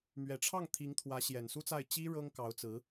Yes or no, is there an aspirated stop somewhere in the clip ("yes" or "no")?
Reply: yes